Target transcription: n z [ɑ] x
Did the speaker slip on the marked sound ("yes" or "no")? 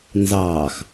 yes